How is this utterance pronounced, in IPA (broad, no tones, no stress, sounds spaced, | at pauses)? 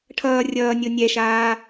ʈʰ ʌː rʲ ʌː nʲ o nʲ ɛ ʃ aː